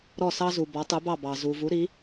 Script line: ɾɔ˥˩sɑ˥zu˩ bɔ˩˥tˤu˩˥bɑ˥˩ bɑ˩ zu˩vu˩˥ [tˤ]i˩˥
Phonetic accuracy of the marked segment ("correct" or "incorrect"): incorrect